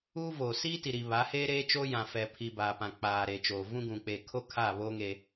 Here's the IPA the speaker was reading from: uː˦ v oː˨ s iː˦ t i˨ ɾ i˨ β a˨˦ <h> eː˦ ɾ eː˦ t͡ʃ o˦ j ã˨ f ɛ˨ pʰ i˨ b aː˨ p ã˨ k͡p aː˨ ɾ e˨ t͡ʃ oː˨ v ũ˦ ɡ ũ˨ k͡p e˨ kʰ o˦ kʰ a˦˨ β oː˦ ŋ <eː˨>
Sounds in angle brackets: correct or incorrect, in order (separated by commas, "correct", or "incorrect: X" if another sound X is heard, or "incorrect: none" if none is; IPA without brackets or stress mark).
correct, incorrect: eː˦